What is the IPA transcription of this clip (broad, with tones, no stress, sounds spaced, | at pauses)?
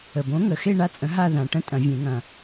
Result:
ə˨˩ b õ˨˥ ŋ ə˨˩ x e˥˧ ɳ a˥ t͡sʼ ə̃˨˥ ɦ a˥˧ ð ã˨˩ ʈ ə̃˥ tʼ ɐ̃˨˩˦ vʲ ẽ˨˩˦ ŋ ɐ̃˨˩